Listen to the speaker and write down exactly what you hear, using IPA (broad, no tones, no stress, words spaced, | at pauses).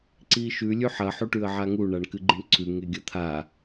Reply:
ǀiʃʉ lʲʉħɐ ħuʈʉə̯ʕaŋu ɳaɳkɨɡ͡ǃiɳǀʰʉ ŋeɡʲɐt̪ʰa